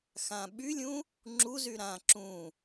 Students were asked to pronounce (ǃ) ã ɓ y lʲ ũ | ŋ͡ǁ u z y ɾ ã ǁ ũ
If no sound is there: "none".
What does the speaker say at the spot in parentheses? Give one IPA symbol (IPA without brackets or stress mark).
x